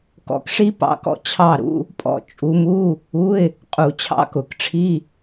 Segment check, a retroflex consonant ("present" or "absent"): present